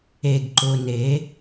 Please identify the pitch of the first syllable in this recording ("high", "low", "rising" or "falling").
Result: low